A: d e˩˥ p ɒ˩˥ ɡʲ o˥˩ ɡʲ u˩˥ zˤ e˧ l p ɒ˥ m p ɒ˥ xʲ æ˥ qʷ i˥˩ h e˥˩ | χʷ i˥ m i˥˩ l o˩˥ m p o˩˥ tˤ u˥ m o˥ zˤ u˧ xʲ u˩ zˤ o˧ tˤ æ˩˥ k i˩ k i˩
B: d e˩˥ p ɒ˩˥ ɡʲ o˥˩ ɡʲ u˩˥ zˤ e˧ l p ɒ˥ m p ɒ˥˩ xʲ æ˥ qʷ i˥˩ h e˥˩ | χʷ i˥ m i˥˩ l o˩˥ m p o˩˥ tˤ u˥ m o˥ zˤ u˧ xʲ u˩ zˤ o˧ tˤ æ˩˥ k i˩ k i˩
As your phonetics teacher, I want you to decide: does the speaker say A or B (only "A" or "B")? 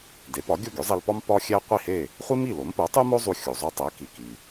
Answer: A